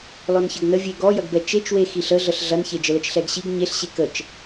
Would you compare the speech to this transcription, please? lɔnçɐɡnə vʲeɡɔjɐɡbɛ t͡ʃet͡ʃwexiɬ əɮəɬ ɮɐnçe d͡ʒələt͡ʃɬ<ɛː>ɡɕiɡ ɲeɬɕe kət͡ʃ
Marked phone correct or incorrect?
incorrect